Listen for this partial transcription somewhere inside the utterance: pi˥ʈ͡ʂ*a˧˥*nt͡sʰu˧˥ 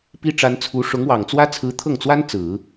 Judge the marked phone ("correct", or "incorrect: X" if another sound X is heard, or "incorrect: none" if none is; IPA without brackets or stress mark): correct